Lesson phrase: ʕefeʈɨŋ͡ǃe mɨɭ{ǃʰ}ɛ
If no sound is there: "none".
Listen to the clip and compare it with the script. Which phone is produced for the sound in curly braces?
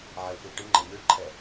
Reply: ǃʰ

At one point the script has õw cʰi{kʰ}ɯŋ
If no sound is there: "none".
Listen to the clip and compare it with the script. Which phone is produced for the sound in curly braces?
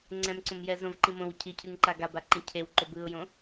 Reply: cʰ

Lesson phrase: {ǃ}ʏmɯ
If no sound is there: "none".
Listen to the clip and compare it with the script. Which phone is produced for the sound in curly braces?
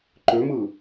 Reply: ǃ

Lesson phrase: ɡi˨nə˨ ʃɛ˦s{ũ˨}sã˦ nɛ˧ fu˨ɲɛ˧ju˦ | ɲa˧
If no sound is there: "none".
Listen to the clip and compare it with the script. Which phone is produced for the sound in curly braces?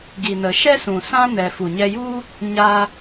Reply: ũ˨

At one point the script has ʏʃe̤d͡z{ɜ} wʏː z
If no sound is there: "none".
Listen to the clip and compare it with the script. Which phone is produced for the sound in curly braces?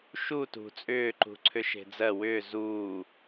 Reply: ɜ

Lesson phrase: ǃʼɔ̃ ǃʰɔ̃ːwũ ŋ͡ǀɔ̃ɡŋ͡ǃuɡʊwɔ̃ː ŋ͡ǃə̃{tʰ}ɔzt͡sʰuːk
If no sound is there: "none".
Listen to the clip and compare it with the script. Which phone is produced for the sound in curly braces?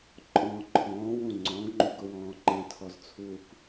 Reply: tʰ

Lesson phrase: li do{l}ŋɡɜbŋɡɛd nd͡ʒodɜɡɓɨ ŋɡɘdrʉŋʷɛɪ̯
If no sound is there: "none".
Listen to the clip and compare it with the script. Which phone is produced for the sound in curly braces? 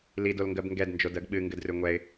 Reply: l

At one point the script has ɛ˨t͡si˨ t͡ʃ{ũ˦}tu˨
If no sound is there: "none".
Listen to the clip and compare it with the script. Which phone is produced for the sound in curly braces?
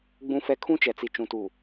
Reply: ũ˨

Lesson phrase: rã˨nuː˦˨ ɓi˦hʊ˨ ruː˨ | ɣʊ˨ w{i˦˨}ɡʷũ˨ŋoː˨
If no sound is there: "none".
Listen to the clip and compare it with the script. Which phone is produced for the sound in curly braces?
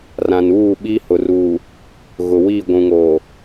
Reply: i˦˨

